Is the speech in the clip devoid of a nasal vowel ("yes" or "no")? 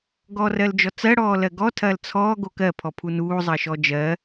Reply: yes